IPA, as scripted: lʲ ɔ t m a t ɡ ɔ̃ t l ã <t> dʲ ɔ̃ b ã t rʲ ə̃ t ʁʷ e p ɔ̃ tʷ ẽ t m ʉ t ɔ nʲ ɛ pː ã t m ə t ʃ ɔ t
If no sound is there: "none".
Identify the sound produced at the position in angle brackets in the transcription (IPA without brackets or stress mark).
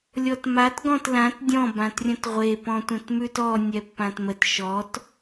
t